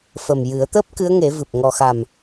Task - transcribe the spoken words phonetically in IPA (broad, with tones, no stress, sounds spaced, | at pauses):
f ə˨˩ m j ɨ˨˩˦ ə̯ t̪ əː˦˥ p̚ k ɨ˧˥ ə̯ ŋ e˨˩˦ v ɨ˨˩ p̚ ŋ ɔ˨˩ x a˨˩ m